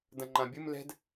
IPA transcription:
d ɐ̃ ŋ͡ǃ ã bʲ ɨ m l ɛ̤ d

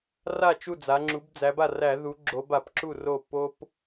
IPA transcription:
r a˥˩ t͡ʃ u˥˩ d͡z a˩˧ ŋ͡ǁ u˩˧ b d͡z æ˩˧ b a˥˩ r æ˧˩˧ ð u˩˧ ɡ͡ǁ o˩˧ b a˧˩˧ p ǁ u˥˩ r o˥˩ p o˦ p

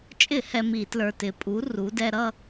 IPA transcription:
t͡ʃʼ ɪ˧˩˧ h ɛ˧ m i˧˩˧ t l ə˞˨˩ t ɪ˩˧ pʼ u˩˧ r u˩˧ d ɛ˧ ɾ ʌ˥˧

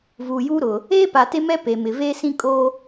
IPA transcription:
v uː˨ j uː˦ ɾ ʊ˨ | eː˦ p a˨ t e˦ m ɛ˦ p e˨ m ɪ˨ v eː˦ s ĩ˦ kʼ oː˦

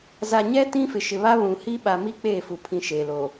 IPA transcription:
z a˨ ɲ ɛ˦ t ĩ˦ f ɪ˨ ʃ ɪ˨ β a˦ β ũ˨ h i˦ ɓ a˨ m i˦ k͡p eː˦˨ f u˨ pʰ ĩ˦ ʃ eː˨ l o˨

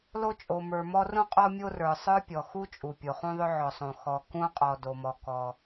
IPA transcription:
l o˦ t͡ʃʼ o˩ m ə˞˩ m ɔ˦ r ũ˥ qʼ ɔ˦ mʲ o˦ r ə˞˩ sˤ ə˞˥ pʲ ɔ˩ x u˥ t͡ʃʼ u˩ pʲ o˩ χ ũ˦ ðˤ ʏ˦ ʕ ɔ˩ sˤ õ˩ x ɔ˨ k ũ˥ qʼ ɔ˨ d o˩ m ɔ˩ k ɔ˩

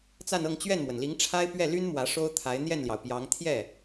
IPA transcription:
t͡s a˥˧ n ɤ˥˧ ŋ t͡ɕ ɥ ɛ˥˩ n m w ə˩ n l i˧˥ ŋ ʈ͡ʂʰ a˥ ɪ̯ p ɥ ɛ˥˩ l y˥ n m w ä˧˥ ʂ o˥ ʊ̯ t̪ʰ a˧˥ ɪ̯ n̪ j ɛ˥˩ n l j ɑ˩ ʊ̯ p j ɑ˧˥ ŋ t̪ʰ j ɛ˥˩

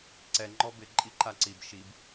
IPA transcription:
ǀ ɛ ŋ͡ǃ ɔ b ɪ ǃʼ i ǃ a ǀ i b ʃ i b

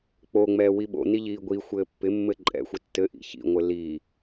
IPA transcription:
k͡p o ŋ͡m ɛː w i ɓ o̰ n i ʎ iː ɡʷ i xʷ ɘː pː ɪ mː ɘ ǃʼ ɛ̰ xʷ ɪ tː ɘ ʔ ḭ ç ḭ ŋʷ ɘ l i

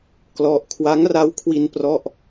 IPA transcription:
k l ɔ˥˩ ʔ kʰ w a˦˥ ŋ r a˦˥ w kʰ w i˧ n p r ɔ˥˩ ʔ

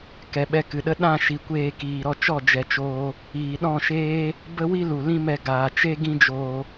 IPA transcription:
k ɛ˨ ɓ ɛ˧ k ɨ˨ ɗ ə˦ ɗ ã˦˨ ʃ i˨ kʷ eː˧ k iː˨ ɾ ɔ˧ t͡ʃ ɔ˦˨ d͡ʒ ɛ˨ t͡ʃ oː˧ | iː˨ ɗ ɔ̃˦˨ ʃ eː˦ | b ə˦ w i˦ l u˨ l ĩ˦ m ɛ˧ ɡ aː˨ t͡ʃ e˦ ɡ ĩ˦ d͡ʒ oː˧

